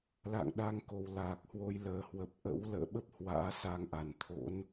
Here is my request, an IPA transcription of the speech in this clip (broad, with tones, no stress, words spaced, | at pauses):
la̰ː˧˨ŋɗa˧ŋko˨˩w laː˨˩k̚hwo˧j ləː˨˩hwə˨˩p̚ ʔə̰˧˥w lə̰ː˧˨ɓə˦˥p̚ hwa̰ː˧˥sa˧ŋʔa˨˩nt̪ʰo̰˧˥n